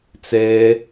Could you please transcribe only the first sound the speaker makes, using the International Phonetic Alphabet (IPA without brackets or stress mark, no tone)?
t͡s